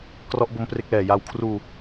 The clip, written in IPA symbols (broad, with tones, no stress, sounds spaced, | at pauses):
k r ɔ˦˥ ʔ b o˦˥ m p r e˦˥ k̚ l ɛː˨˩ j a˧ w kʰ r uː˧